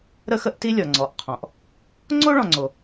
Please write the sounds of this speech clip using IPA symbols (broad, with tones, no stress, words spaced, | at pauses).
ɾə˥xə˥ʔti˥lʲɔ˩ ŋ͡ǀɔ˩ʔ qʰɔ̃˩ʔ | ŋ͡ǀo˥ɭɔ̃˩ŋ͡ǀo˩